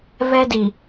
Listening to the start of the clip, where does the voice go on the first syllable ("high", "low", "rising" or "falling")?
high